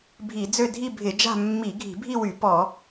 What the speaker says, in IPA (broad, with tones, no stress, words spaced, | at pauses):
bʱi˧˩˧d͡zø˥˧ dʱi˥˧bʱɪ˧˩˧d͡ʒa̤˥˧ mːi˧˩˧ɡʱi̤˧˩˧bʱi˥˧wy˧˩˧ pɔ˧˩˧